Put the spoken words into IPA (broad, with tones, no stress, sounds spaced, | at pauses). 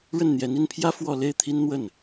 ɻ ə˥˩ n n̪ j ɛ˧˥ n i˥˩ n pʰ j ä˥ f w ɔ˥˧ l e˥˩ ɪ̯ t̪ʰ i˥ n n̪ w ə˥˩ n